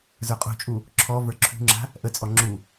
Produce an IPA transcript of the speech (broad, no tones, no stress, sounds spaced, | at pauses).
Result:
z ə˞ qʼ ṳ t͡ʃʼ u | ǁʰ ɔ v ə˞ ǁʰ ṳ ŋ͡ǁ a̤ | ʔ ə t͡sʼ ɔ ŋ͡ǁ u